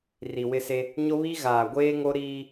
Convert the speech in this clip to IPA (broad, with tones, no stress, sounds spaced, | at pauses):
r i˨ w ɪ˦ s e˦ | ɲ o˦ β i˦ ɣ aː˨ ɡʷ eː˦ ŋ o˦ ɾ iː˦